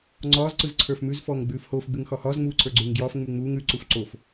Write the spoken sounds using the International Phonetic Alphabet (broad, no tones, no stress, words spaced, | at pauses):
ŋ͡ǀɒːz ǀɯzǀʰə˞fmʉz fɔːŋɡ͡bʉːfhoːf ɡ͡bʉŋxɒhɒːz ŋ͡muːǀʰə˞ɡ͡ǀʉːŋɡjɒːf ŋ͡mʉŋ͡muːŋ ʉ ǀufǀof